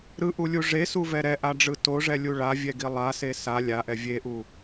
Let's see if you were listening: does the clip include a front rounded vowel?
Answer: no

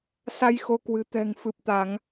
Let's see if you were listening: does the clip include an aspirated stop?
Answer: no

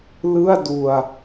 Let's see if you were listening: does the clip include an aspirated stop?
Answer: no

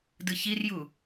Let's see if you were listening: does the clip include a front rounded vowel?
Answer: no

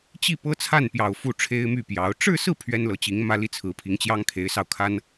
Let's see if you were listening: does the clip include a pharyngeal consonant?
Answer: no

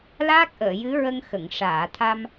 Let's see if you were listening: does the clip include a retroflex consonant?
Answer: yes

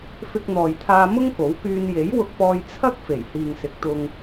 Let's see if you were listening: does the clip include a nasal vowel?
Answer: no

